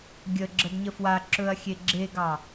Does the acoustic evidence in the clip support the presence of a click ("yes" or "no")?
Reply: yes